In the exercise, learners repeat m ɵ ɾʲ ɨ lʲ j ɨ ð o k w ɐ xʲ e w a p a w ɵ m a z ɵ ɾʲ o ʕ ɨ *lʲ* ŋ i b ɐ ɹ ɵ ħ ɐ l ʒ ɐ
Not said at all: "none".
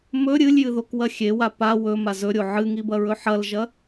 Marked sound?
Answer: none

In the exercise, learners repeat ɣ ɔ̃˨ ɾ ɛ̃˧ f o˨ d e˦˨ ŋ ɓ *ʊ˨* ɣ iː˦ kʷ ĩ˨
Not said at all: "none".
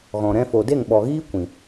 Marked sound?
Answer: ɔ˨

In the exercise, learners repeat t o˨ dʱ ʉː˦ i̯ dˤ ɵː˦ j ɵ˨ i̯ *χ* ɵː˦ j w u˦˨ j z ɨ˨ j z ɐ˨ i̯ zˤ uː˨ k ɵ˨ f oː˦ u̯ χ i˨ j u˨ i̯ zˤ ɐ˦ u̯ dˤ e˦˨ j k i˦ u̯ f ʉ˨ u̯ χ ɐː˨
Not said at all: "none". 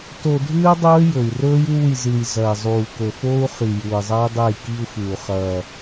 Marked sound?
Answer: r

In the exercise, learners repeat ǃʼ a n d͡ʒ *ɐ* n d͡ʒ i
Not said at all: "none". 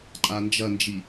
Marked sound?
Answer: ɐ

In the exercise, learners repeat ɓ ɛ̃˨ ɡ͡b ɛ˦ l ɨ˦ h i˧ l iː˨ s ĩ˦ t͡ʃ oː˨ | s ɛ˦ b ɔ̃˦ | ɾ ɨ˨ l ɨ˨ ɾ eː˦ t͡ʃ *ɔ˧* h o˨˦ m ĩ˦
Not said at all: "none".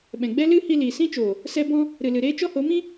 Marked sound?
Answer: ɔ˦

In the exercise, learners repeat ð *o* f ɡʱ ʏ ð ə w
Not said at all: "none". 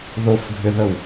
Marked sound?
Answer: o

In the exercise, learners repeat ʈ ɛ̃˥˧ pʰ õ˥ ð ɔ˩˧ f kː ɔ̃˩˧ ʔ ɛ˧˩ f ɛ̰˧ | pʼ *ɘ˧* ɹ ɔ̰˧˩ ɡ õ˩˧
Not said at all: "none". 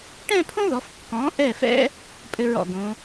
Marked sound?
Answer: ɘ˧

